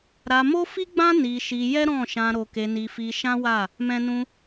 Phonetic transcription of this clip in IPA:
ɾa˧mo˦fi˦ɡ͡bã˦ ni˧ʃi˧ jɛ˦ɾɔ̃˦˨ʃã˧ ɾo˧ke˧ni˧ fi˧ ʃã˦wa˦˨ | mɛ̃˦nũ˦

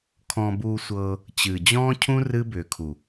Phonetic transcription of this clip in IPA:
kʰɔ̃˧buː˧sʷɤː˧ | t͡ɕɨ˨d͡ʑɔ̃ː˦cʰũ˦ rɨ˦bʏː˨kʰu˨

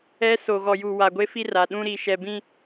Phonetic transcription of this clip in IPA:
ɛ˦ so˨ɣɔ˨ju˨wa˨ ɡʷe˦fi˦ ra˨ɗũ˦ ɾi˨ʃɛ˨bĩ˦

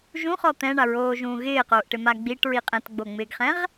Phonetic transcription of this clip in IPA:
ʒũχɔ t̪ɛ̃ɳaɹoːʒũː ɣɪːqoːʔʈɪma ɡ͡biʈɹi qʼɛ̃tɡ͡boŋ͡mɪːɡχɛ̃ʁ

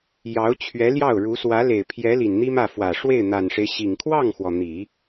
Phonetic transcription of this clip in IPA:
jɑ˧˥ʊ̯t͡ɕʰɥɛ˧˥ljɑ˥˩ʊ̯ɻu˧˥ swä˧˥le˨˩ɪ̯ pʰjɛ˧˥ li˨˩nn̪i˥mä˥˩ fwä˨˩ ʂwe˥˩ɪ̯n̪a˨˩nʂe˦ɪ̯ ɕi˨˩ŋ kʰwɑ˥˩ŋxwɔ˩ n̪i˨˩˦

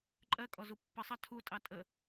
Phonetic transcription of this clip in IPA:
ǃʼɜkʼɔzu pːəsˤɑ tʰutʼɑ tʼə

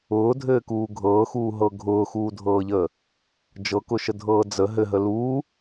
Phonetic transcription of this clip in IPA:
ʊːdʱɘːkuː ɡʱɤːxuːɦɤ ɡʱʊːxuːdʱɤːʎəː | d͡ʒɤkʊʃədʱɤː d͡zə ɦɘɦə luː

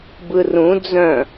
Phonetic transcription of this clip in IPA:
bɯrũ d͡zœ̃

